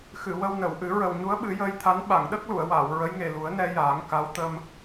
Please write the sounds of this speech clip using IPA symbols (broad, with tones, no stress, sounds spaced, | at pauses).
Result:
x ɨ˨˩˨ w ə˧ w n ə˨˩˨ w ʔ ɨ˨˩˦ ɹ ə˨˩ w ɲ u˧˥ ə̯ ɓ ɨ˨˩˦ j əː˧ j t̪ʰ a˧˥ n ɓ a˨˩˨ ŋ ɗ ə˦˥ k̚ l u˨˩˨ ə̯ w aː˨˩˨ w ɹ ə˧˥ j ŋ e˨˩ l u˨˩˦ ə̯ n ɛ˧ j aː˨˩˦ ŋ k a˧˥ w t̪ ə˧ m